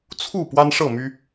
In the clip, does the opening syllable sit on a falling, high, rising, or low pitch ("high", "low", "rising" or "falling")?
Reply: falling